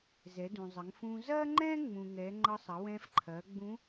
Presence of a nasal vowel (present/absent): present